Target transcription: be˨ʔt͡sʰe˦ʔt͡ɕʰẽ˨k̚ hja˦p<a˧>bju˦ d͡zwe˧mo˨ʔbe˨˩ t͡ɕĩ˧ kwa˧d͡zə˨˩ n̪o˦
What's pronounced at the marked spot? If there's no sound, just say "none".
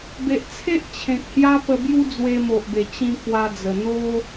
ə˧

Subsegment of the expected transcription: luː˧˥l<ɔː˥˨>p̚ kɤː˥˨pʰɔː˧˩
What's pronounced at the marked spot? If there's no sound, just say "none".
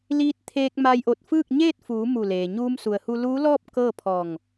ɔː˥˨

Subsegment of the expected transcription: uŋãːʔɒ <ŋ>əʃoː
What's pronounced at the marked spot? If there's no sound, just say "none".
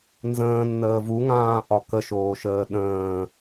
k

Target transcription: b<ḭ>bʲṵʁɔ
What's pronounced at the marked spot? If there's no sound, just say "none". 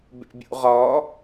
ḛ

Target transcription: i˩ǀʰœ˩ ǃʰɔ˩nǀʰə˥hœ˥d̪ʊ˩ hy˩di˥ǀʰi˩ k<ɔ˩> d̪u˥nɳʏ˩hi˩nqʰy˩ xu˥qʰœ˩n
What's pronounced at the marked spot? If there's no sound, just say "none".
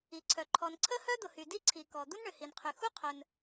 ɔ˩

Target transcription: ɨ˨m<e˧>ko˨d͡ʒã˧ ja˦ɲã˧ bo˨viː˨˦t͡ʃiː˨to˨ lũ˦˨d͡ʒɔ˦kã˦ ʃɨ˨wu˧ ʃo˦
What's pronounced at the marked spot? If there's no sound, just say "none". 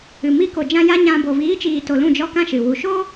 i˧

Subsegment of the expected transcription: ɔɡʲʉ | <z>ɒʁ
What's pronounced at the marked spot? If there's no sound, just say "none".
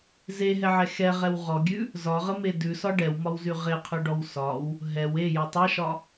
z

